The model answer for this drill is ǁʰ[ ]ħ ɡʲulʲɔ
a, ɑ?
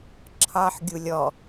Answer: ɑ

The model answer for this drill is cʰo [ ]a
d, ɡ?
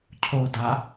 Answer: d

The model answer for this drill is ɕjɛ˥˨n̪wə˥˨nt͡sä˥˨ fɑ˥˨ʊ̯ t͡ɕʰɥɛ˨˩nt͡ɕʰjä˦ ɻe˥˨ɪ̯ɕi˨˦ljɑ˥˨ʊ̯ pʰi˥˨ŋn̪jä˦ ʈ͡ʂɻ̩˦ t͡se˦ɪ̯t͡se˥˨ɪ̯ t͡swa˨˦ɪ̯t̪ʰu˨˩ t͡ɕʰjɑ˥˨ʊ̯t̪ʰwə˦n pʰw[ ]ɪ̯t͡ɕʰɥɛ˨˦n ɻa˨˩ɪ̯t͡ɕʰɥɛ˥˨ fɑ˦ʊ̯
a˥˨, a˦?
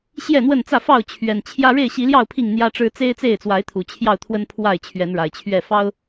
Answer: a˥˨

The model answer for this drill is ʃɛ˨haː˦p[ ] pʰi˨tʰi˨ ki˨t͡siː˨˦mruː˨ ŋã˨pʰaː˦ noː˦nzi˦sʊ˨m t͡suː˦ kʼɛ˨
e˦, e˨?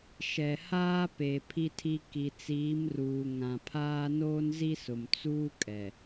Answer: e˨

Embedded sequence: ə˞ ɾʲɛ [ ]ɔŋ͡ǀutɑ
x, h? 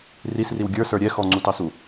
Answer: x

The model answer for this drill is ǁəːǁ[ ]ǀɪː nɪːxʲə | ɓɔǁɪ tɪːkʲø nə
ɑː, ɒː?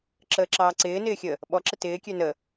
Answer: ɑː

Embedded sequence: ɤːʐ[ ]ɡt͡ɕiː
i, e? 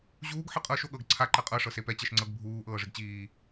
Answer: i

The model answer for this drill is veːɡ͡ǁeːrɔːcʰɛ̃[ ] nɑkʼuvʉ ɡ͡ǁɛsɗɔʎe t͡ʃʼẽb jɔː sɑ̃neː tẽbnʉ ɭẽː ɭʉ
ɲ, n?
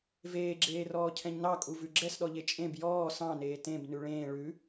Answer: ɲ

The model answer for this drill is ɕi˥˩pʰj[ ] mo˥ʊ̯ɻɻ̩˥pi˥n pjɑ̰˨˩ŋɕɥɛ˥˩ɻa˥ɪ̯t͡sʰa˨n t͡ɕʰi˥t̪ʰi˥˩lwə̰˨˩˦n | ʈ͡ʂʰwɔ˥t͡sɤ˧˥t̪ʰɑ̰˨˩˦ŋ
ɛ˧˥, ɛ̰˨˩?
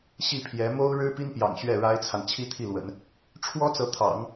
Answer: ɛ˧˥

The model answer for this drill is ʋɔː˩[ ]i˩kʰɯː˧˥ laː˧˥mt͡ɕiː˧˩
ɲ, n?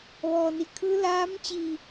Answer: n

